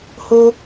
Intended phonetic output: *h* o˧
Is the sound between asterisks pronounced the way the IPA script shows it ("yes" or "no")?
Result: yes